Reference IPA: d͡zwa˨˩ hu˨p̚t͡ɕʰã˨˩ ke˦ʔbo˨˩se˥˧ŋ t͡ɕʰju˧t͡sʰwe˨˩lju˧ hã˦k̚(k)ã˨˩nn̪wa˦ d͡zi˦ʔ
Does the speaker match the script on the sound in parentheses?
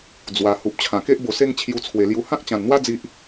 no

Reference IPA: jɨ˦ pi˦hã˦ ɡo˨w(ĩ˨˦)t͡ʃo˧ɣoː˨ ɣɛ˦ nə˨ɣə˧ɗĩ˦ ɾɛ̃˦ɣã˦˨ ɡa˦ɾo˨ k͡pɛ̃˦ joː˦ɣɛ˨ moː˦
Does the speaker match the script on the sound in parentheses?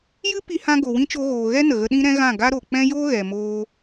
no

